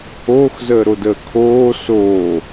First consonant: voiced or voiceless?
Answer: voiceless